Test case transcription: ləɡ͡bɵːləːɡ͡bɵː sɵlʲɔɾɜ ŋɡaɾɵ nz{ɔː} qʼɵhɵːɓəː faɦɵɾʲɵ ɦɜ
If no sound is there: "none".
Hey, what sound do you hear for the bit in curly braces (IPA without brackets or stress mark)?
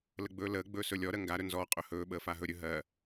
ɔː